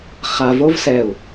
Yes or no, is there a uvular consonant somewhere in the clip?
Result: yes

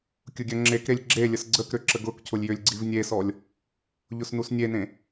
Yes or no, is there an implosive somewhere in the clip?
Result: no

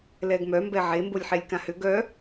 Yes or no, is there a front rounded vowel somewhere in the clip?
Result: yes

